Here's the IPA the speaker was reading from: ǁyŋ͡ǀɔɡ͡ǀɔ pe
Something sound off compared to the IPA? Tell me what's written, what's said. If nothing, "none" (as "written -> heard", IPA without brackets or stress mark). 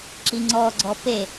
y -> i